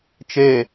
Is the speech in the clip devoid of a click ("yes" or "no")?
yes